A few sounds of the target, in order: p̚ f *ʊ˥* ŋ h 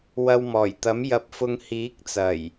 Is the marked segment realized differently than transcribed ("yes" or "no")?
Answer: yes